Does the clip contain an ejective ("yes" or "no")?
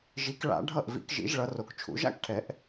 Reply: no